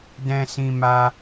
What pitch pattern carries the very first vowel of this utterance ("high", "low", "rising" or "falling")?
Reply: high